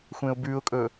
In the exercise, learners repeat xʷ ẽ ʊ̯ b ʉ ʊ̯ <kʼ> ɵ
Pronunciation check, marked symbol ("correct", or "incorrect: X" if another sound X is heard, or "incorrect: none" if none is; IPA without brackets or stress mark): correct